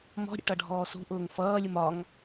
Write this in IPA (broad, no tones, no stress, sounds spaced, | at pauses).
m ɔ̤ ɾʲ ə̰ ʈ ʌ ɖʱ ɔː s ṳ ʔ ʊː ŋ f ʌː lʲ ʊ m ɒ ŋ